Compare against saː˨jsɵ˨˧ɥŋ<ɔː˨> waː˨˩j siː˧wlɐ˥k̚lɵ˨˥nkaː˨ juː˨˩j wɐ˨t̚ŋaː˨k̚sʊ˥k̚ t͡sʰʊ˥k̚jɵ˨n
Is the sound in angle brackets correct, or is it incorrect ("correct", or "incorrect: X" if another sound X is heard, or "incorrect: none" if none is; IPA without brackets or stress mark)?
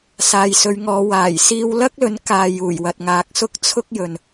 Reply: incorrect: ɔː˨˧